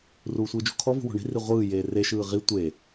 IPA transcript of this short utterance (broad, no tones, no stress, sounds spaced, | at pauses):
r uː sʷ ɯː d͡ʒ ṳ kʰ ɔ v ṳ w ɔ̤ ɳ i̤ r i ʁʷ ɯː j eː r e ʃ ɯː ʁ i tʷ e